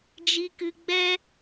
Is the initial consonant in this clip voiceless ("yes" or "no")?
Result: no